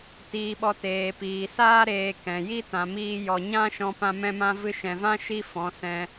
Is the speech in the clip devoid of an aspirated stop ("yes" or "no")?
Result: yes